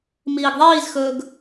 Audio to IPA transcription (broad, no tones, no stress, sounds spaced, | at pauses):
m iː ɡ ðˤ iː z x ɵː ɡ